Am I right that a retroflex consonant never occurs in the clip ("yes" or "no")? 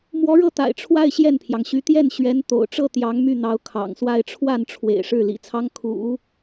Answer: no